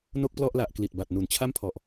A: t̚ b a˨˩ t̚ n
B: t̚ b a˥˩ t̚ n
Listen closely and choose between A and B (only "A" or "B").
A